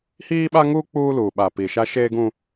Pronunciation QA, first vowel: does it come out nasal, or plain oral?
oral